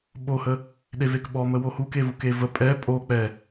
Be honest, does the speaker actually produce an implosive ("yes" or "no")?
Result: yes